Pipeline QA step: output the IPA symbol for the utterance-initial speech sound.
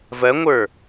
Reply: v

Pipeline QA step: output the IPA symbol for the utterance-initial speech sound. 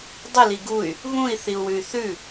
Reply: dˤ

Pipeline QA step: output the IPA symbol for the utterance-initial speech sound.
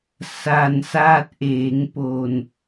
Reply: s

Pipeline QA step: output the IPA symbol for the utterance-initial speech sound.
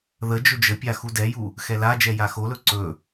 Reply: ð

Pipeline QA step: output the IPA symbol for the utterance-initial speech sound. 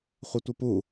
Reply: χʷ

